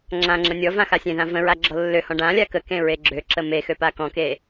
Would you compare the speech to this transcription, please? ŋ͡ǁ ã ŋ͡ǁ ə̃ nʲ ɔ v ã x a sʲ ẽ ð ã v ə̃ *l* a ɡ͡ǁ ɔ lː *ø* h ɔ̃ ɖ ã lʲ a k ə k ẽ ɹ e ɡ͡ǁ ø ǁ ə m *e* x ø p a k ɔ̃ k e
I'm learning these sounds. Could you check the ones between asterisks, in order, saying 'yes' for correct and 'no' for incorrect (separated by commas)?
no, yes, yes